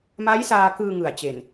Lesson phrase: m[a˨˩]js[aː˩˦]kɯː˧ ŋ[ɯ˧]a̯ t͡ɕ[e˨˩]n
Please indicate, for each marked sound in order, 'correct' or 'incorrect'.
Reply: incorrect: a˦˥, incorrect: aː˧, incorrect: ɯ˨˩, correct

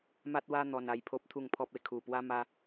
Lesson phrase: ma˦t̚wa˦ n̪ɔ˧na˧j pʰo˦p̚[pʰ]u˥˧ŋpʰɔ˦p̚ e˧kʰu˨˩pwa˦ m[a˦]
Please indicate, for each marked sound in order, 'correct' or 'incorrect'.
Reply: incorrect: t̪ʰ, correct

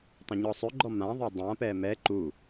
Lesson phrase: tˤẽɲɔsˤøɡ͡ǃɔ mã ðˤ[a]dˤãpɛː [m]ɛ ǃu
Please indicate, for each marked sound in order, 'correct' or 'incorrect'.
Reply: correct, correct

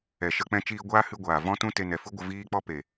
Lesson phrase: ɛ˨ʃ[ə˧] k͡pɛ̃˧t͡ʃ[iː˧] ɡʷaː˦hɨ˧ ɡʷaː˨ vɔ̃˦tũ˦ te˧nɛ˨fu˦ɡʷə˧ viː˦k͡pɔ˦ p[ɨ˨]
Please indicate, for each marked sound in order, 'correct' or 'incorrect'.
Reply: correct, correct, incorrect: e˨

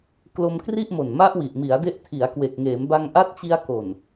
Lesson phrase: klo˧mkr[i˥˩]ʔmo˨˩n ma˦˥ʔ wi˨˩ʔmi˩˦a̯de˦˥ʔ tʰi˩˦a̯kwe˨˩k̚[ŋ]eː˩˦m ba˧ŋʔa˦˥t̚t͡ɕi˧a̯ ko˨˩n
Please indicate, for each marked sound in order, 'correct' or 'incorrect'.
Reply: correct, correct

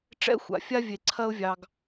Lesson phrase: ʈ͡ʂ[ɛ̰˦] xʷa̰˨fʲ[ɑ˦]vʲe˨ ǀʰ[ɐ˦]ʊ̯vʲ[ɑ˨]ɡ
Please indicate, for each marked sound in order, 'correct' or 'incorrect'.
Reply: correct, incorrect: a˦, correct, correct

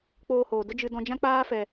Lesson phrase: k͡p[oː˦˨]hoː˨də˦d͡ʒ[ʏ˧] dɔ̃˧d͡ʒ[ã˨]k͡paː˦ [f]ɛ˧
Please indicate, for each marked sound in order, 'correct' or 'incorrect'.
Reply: incorrect: oː˧, incorrect: ɨ˧, incorrect: ã˦, correct

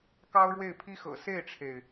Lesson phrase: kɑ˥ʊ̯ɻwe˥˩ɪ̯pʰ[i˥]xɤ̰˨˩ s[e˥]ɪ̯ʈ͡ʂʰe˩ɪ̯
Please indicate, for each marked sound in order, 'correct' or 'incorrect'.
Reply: correct, incorrect: e˥˩

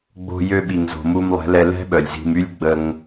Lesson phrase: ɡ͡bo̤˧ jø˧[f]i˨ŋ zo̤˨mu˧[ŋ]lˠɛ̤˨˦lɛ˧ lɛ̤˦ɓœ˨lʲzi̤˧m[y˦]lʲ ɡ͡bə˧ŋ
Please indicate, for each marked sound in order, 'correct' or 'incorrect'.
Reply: incorrect: ɓ, incorrect: m, correct

